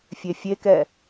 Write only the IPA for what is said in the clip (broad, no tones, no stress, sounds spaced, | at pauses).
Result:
fʲ e fʲ e k ɛ